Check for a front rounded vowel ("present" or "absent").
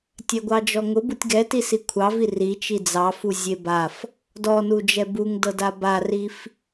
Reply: absent